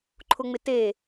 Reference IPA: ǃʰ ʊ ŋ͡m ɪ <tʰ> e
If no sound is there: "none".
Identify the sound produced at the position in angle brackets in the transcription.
t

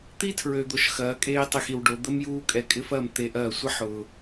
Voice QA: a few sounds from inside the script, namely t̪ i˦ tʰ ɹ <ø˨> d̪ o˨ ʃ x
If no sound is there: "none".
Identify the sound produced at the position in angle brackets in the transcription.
ø˨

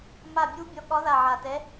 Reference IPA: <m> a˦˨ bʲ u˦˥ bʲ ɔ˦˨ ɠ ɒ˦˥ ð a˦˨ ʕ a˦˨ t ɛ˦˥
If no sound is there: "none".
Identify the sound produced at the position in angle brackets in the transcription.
m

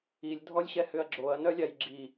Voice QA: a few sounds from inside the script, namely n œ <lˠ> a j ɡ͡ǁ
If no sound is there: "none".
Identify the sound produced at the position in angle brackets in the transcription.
lʲ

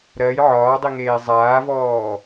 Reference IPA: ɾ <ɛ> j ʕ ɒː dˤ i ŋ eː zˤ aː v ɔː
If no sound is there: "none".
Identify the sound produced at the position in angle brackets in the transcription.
ɜ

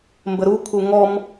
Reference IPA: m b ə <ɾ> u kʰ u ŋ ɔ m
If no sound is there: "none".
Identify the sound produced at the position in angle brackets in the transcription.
ɾ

